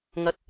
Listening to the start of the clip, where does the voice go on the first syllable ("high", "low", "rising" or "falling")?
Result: low